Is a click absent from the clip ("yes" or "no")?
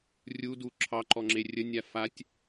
no